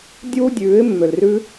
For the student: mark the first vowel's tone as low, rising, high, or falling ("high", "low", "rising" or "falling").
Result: high